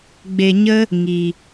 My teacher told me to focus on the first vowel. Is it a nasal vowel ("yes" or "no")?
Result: no